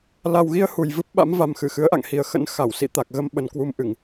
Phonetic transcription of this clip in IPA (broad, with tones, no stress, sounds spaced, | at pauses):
l a˨˩ w ɣ i˧ ə̯ h u˨˩ j v ɨ˦˥ p̚ ɓ a̰˧˥ m v a˨˩ m x ɨ˧˩ x ɨ˨˦ ə̯ ʔ a̰˧˨ ŋ h i˨˩ ə̯ x ə̰˧˥ n x a˧˩ w s ḭ˧˨ t̪ a˨˩ k̚ ɣ ə˧ m ɓ ə˨˩ n k w u˧ m ʔ ɨ˧˩˨ ŋ